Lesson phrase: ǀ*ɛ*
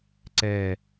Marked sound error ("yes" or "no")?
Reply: no